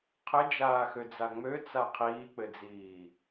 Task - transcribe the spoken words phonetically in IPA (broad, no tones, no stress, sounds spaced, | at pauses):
qʰ ɘ d͡ʒ aː x ø d͡z a ŋ͡m ø t͡s a qʰ iː k͡p ɘ d͡z iː